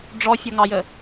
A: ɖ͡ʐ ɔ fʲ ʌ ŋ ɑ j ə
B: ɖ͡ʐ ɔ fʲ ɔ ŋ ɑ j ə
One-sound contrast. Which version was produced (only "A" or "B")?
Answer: A